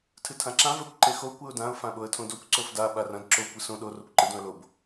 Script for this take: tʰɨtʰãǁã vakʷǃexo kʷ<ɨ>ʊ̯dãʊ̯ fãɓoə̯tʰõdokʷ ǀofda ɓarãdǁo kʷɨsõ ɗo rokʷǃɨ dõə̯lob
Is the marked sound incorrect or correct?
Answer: correct